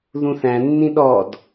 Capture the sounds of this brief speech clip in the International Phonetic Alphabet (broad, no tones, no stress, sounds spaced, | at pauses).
ð ũ θ æ̃ nː ĩ ɗ ɔ d